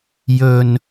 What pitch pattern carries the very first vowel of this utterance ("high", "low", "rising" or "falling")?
low